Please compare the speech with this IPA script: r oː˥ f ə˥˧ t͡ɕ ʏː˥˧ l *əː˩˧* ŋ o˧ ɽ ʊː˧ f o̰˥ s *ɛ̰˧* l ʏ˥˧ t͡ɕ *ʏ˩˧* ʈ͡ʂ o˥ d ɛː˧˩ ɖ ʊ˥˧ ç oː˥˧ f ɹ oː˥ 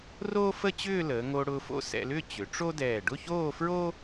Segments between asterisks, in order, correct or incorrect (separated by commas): correct, correct, correct